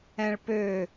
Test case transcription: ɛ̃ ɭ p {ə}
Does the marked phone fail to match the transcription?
yes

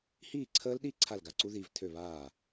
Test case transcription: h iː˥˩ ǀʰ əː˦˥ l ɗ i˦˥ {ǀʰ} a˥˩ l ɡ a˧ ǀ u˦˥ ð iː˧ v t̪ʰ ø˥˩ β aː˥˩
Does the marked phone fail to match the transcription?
no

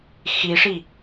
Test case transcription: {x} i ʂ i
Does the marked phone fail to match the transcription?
no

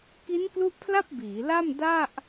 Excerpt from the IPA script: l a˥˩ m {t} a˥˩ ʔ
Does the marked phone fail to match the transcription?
yes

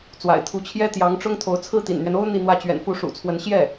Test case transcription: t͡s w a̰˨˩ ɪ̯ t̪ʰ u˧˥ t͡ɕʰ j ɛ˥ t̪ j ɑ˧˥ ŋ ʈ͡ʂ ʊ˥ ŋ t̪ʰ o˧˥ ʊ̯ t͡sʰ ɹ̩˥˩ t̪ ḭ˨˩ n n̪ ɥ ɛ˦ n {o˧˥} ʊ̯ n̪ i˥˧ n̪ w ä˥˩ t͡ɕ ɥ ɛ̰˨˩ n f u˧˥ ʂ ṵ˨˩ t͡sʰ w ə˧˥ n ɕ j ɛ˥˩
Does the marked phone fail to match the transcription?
yes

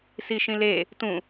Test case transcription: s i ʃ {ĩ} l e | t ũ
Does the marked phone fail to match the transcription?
no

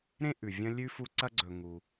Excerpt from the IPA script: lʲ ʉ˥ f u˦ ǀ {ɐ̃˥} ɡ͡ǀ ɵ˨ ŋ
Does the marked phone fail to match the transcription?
yes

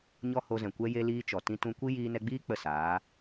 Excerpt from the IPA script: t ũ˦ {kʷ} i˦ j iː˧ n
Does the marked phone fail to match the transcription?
no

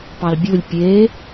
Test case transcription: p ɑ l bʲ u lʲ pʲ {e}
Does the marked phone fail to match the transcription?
no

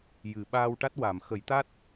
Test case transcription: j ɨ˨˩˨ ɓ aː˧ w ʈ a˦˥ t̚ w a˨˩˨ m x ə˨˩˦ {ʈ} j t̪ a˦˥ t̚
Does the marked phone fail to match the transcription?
yes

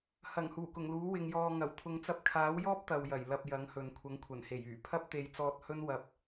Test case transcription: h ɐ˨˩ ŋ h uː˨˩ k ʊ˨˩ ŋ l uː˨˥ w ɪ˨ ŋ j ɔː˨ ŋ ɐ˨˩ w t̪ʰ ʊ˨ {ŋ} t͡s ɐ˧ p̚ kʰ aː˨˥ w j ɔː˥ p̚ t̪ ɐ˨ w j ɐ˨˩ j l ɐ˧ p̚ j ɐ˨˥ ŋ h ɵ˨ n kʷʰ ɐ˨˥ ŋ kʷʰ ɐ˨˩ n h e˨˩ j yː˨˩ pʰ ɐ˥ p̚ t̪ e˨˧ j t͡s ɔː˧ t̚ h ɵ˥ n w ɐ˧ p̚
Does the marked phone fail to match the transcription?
no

